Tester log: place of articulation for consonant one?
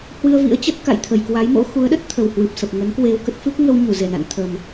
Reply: glottal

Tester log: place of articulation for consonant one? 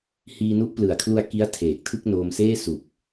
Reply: glottal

